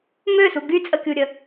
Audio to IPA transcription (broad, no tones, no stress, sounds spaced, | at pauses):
m ø s u ɡ y t͡sʼ ə kʲ u ɾʲ ə